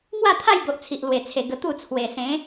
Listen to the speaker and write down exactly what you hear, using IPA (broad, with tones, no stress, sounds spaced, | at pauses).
ŋ w a˥˧ t̪ʰ a˥˧ j b o˨ ʔ t͡sʰ i˨ ʔ l w e˨˩ t͡sʰ e˨˩ ɡ ə˧ t̪ u˥˧ t͡sʰ w e˨˩ s ẽ˨˦